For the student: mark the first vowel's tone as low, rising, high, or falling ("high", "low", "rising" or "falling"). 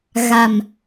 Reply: low